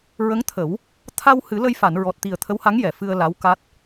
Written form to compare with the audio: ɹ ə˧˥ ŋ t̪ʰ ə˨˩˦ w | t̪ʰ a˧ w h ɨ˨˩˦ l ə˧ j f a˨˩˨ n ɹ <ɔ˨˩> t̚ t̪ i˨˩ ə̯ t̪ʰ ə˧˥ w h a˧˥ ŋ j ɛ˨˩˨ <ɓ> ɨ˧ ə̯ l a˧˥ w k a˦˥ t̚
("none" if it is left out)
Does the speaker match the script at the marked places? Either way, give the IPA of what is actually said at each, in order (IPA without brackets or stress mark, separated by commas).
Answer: ɔ˨˩, f